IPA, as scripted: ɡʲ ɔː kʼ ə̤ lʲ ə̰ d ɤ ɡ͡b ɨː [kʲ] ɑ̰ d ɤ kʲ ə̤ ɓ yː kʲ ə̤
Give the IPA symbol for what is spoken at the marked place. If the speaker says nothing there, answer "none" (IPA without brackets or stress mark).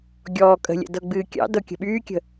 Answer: kʲ